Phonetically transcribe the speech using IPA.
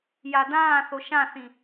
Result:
j a d ãː θ o ʃ ã θ ĩ

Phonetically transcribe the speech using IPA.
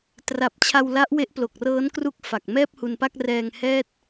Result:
t r a˨˩ p̚ t͡ɕʰ a˧ w l a˦˥ ʔ w e˦˥ ʔ p l o˨˩ k̚ r ɤː˦˥ n k r u˦˥ k̚ f a˨˩ k̚ m ɛː˥˩ p̚ h u˧ n p a˥˩ k̚ r ɛː˧ ŋ h ɛː˥˩ t̚

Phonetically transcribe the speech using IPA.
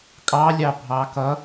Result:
kʼ ɑ lʲ ɑ bʱ ɑ k ʌ

